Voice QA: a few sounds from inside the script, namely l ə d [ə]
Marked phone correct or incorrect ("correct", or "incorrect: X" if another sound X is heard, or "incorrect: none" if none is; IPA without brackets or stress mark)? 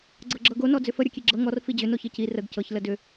incorrect: ʏ